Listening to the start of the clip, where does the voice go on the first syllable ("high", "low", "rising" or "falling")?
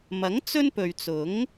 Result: rising